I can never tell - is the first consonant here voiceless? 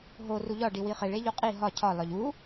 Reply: no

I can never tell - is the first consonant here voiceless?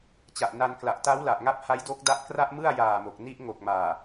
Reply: yes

